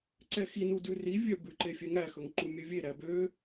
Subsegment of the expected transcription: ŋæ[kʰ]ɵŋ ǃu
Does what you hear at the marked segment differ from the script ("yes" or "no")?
yes